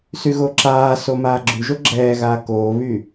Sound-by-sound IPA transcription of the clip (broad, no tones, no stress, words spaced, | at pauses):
syɣoǁaːso maːɡ͡ǁyʒo ɡ͡ǁɛːɣaː koːβy